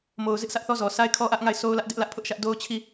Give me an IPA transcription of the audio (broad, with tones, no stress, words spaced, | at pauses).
mo˨ʊ̯zɪ˦ʔsä˦ʔθɔ˦ zɔ˨sʰa˦ɪ̯kʰɔ˦ ʔä˦ʔŋa˦˨ɪ̯ sʰo˦ʊ̯lä˦ʔdɪ˦ʔ lä˦ʔpʰʊ˦ʔʃä˦ʔ do˦ʊ̯t͡ɕʰi˦˨